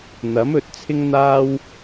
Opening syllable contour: rising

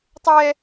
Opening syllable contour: high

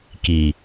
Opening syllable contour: low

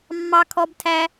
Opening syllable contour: high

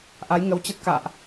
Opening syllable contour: rising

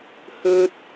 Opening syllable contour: high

